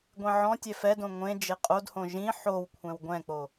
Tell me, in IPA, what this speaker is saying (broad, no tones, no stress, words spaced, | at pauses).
ɡʷẽʕɔ̃tʲɛ fɛdõ ŋʷẽ d͡ʒeqʼodhõ ʒĩ ħow kʷʰɛ̃wɡʷɛ̃k͡po